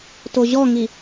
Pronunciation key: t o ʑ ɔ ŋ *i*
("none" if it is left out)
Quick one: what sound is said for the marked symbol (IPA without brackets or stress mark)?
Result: i